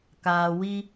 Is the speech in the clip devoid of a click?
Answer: yes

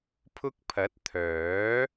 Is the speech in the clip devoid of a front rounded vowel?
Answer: no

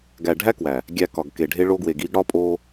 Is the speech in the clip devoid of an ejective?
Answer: no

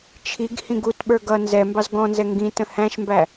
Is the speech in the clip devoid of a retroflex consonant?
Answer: yes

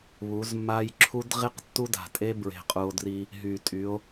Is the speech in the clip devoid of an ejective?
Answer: no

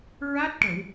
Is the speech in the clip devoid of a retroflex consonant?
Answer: no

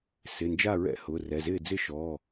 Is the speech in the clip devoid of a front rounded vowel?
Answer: yes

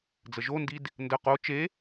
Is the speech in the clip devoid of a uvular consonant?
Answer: no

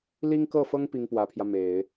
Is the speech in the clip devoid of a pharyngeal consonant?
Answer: yes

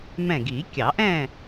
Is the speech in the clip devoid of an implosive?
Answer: yes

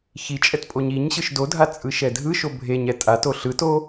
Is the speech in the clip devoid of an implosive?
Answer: yes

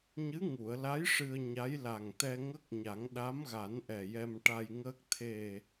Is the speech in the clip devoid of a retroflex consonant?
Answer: no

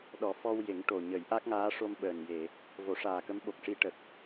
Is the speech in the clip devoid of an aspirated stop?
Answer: yes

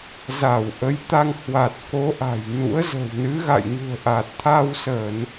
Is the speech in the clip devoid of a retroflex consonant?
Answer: yes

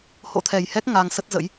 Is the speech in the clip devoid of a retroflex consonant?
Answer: yes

